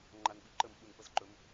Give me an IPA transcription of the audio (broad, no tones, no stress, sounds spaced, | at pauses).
ŋ͡ǃ a n ɓ i ǃ ə m ɓ u n p ə z ǃ ɵ m